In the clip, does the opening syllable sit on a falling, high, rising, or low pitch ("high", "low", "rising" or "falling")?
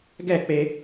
falling